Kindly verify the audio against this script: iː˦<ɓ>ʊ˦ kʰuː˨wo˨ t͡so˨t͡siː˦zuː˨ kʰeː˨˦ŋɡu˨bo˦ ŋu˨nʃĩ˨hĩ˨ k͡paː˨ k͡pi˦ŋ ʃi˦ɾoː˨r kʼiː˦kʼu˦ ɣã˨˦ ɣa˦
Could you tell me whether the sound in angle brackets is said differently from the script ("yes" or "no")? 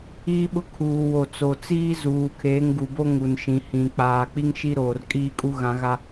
no